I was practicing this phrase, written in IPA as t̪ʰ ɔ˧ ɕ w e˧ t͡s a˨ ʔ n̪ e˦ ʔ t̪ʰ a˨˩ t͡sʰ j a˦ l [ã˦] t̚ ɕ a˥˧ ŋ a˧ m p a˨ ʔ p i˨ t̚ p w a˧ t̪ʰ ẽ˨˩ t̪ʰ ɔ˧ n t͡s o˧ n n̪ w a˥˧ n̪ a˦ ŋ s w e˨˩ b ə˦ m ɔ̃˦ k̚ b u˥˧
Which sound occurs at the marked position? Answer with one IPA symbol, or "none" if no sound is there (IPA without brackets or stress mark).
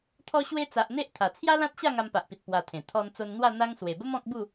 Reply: ã˦